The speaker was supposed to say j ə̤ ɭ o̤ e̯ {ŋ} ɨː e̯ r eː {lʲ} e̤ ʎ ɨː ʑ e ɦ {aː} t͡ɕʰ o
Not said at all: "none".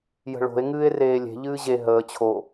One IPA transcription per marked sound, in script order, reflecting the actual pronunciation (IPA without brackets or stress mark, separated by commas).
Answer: ŋ, lʲ, əː